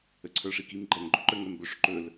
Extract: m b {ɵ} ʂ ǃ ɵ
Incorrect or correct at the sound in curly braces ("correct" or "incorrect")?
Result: correct